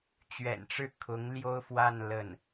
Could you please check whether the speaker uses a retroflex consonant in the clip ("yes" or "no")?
yes